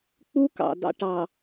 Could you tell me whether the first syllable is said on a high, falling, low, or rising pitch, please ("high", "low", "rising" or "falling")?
high